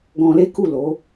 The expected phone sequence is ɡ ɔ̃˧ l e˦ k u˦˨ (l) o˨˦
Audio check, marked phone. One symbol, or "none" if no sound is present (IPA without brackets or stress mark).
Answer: l